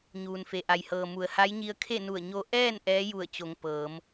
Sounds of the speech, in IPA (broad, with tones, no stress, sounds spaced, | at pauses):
ɲ uː˩ n f e˩ ʔ a˩ j h ɤː˩ m u˩˧ ə̯ h a˧˥ j ɲ i˧ ə̯ kʰ e˥˨ n u˧˩ ə̯ ɲ o˧ ʔ ɛː˥˨ n ʔ ɛː˧˥ j u˧˩ ə̯ t͡ɕ o˩˧ ŋ p ɤː˩˧ m